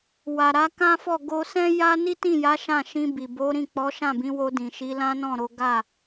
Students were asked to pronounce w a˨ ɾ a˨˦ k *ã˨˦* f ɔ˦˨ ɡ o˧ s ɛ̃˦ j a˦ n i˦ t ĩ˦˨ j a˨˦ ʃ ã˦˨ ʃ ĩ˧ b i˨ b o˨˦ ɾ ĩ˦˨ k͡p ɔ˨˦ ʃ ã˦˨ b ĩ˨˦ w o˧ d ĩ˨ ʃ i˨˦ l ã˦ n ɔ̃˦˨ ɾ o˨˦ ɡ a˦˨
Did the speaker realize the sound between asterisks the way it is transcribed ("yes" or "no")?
no